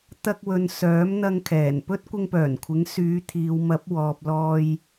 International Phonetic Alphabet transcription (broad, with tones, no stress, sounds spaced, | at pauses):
t̪ ɐ˧ k̚ w ɵ˨ n s œː˨˥ m n̪ ɐ˧ ŋ kʰ ɛː˨˩ n p ɵ˥ t̚ kʷ ɪ˧ ŋ p œː˨˩ n kʷʰ ɪ˨˥ ŋ s yː˨˧ t̪ʰ iː˨ w m ɐ˨˥ p̚ w ɔː˨ p̚ l ɔː˧ j